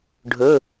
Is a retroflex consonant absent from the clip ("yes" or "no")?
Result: no